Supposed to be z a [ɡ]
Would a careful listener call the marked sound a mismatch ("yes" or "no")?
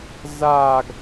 no